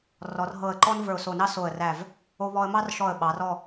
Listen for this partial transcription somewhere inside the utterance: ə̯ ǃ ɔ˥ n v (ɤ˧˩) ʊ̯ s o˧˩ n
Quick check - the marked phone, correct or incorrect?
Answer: incorrect